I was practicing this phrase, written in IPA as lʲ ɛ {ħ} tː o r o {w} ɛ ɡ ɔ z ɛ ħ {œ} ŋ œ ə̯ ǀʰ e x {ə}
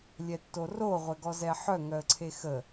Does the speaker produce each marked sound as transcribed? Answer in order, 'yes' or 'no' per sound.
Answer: no, no, yes, yes

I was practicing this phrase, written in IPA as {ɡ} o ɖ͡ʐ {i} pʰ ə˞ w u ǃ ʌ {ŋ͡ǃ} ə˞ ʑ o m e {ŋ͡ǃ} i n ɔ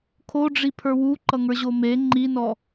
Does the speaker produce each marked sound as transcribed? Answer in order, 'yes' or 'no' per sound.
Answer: no, yes, no, yes

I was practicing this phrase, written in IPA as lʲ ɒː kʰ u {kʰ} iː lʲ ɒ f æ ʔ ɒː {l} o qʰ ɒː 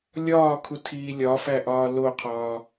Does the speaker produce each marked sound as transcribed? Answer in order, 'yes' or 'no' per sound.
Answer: no, yes

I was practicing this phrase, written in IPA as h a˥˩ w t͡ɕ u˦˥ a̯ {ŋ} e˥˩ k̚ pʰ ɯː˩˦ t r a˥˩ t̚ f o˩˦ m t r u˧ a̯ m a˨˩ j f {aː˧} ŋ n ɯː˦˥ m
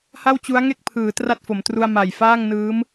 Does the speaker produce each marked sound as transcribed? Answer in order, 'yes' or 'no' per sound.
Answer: yes, no

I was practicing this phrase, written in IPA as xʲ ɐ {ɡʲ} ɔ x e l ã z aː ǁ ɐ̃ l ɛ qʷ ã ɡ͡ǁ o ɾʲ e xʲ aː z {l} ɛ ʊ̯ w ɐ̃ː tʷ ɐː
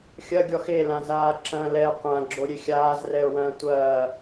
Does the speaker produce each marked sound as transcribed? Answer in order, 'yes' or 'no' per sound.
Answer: yes, no

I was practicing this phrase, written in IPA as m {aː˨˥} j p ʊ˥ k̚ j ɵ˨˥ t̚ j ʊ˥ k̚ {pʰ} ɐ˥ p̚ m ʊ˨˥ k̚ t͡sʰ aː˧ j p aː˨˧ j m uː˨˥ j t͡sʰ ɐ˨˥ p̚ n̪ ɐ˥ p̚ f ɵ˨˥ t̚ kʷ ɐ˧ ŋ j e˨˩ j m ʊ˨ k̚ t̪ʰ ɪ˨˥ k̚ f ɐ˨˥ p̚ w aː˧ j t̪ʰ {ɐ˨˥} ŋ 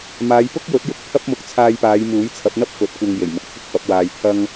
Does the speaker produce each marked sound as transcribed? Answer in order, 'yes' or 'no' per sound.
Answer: no, yes, no

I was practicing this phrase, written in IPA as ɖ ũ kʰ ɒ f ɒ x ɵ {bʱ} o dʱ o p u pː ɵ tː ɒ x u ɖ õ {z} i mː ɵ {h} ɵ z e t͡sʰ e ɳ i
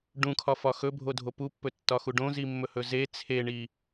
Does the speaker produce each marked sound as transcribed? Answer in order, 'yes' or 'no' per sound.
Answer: yes, yes, yes

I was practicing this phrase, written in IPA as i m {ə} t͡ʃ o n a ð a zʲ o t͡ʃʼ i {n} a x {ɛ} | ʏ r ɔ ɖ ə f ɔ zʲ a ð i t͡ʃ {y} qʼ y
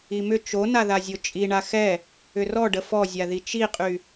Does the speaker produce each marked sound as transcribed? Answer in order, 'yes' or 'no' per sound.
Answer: no, no, yes, no

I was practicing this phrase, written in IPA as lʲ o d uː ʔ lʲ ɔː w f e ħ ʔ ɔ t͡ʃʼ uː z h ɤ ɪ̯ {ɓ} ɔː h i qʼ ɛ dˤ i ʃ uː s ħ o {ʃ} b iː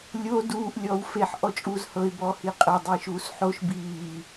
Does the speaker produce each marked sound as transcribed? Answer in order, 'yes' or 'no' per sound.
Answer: no, yes

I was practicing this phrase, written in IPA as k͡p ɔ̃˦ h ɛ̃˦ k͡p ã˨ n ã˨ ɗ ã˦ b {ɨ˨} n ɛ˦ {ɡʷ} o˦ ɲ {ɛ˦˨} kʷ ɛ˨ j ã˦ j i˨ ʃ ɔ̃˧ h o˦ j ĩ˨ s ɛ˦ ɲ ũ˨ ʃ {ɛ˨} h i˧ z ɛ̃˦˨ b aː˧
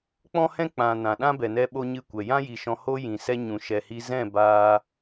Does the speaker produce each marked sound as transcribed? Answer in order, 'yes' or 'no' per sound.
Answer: no, no, no, yes

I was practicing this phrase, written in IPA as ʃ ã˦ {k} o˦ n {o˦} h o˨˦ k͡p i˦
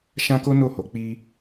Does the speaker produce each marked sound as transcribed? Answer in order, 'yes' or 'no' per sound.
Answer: yes, no

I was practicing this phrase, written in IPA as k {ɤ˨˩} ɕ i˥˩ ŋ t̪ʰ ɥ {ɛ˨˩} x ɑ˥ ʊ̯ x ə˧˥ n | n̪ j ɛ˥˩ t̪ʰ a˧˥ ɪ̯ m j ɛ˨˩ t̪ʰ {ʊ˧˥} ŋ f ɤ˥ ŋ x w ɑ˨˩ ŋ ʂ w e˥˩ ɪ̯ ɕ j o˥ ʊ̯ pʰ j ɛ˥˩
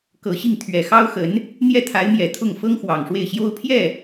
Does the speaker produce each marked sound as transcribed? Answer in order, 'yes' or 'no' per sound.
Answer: yes, yes, no

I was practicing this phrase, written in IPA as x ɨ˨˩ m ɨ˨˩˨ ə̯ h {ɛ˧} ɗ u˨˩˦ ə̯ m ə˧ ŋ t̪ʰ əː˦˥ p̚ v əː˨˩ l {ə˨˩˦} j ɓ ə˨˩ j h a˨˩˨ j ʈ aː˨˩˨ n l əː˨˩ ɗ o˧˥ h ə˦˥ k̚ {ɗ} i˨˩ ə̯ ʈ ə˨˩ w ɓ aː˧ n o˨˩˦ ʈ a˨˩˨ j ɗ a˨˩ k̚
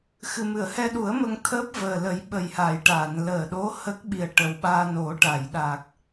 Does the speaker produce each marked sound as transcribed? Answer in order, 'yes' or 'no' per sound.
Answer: yes, yes, no

